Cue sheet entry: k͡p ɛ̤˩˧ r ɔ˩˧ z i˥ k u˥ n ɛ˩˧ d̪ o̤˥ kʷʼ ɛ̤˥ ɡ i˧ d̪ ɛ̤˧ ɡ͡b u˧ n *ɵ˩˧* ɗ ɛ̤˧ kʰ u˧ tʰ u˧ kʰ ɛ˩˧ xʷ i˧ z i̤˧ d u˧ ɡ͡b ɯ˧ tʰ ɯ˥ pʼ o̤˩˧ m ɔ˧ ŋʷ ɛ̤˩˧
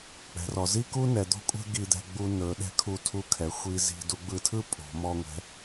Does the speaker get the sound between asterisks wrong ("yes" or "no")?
no